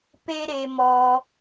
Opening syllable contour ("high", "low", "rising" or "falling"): high